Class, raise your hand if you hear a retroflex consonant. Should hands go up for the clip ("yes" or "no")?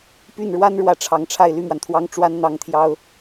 yes